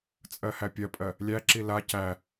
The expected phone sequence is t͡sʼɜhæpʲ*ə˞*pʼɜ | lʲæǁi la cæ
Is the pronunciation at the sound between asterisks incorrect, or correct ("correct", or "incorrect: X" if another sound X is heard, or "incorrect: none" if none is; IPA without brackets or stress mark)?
incorrect: ɜ